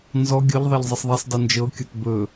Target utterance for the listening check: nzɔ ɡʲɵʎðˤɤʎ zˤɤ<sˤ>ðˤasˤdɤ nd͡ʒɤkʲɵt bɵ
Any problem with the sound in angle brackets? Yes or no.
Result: no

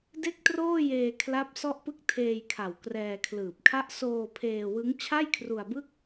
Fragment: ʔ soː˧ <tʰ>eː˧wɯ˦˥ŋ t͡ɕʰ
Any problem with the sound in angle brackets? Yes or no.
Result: yes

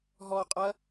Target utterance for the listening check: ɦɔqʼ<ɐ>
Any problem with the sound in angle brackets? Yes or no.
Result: no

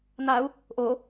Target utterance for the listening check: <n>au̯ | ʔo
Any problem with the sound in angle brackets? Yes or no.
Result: no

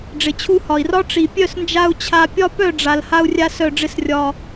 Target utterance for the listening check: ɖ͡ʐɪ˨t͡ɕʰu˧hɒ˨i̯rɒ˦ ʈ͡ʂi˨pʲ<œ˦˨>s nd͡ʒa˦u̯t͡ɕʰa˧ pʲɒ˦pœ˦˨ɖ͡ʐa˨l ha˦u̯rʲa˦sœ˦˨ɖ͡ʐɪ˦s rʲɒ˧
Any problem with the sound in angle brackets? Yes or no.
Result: no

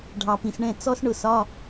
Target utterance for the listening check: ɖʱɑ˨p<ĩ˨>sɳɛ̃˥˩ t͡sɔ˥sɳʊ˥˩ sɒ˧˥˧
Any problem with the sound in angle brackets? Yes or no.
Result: no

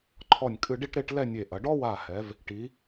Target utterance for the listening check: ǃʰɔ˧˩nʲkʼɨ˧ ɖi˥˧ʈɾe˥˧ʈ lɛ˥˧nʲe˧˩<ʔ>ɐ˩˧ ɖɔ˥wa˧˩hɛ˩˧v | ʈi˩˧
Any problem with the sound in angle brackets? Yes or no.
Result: no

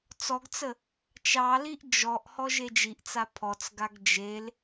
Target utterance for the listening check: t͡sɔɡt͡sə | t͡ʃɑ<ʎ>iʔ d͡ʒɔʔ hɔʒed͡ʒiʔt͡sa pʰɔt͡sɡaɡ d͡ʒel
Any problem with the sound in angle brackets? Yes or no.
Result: yes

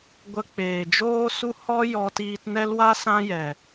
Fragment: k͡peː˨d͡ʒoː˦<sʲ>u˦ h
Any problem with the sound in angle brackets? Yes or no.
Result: yes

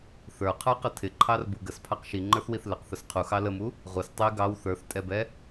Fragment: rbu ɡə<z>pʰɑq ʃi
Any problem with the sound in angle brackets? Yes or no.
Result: yes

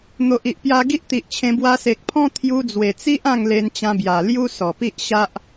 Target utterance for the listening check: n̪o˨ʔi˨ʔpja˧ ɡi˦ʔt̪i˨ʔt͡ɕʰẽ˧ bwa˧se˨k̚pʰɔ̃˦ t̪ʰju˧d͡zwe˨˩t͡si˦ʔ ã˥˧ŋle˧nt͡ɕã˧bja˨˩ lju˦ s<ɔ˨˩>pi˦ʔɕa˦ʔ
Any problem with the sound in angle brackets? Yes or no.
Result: no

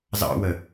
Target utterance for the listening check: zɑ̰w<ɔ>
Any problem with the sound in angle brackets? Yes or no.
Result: yes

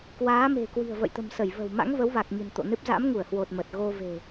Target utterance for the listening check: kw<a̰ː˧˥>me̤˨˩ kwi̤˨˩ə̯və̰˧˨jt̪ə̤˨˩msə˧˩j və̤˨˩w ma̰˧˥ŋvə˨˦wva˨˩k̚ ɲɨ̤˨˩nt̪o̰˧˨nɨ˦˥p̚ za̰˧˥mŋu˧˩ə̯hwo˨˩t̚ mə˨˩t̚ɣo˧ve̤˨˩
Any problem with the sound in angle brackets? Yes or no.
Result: yes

